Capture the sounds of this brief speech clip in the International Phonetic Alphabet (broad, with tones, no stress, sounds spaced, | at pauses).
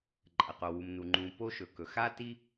ǃʼ ɐ˩ q o˩ w u˩ m n u˩ ŋ͡ǃ ũ˩ p o˥ ʃ ɵ˩ k ɵ˩ x a˥ t i˥